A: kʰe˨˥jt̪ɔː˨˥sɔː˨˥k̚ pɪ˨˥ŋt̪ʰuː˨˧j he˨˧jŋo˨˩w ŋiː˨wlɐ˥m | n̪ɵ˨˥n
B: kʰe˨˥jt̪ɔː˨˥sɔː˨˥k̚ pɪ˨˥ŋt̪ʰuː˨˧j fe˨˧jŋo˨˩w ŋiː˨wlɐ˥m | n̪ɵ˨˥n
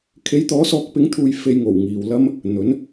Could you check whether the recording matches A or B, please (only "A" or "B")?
B